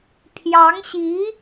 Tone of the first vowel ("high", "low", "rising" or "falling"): rising